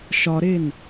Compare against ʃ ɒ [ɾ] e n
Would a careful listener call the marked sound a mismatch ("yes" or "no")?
no